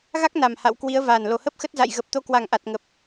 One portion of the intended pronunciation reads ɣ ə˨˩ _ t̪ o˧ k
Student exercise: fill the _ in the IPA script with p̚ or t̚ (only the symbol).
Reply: p̚